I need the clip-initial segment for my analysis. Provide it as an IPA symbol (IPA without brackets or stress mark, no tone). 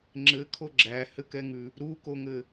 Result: ŋ͡ǁ